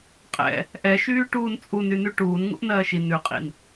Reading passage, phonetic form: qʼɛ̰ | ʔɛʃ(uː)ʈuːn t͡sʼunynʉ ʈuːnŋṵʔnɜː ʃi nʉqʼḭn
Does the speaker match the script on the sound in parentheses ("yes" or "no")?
no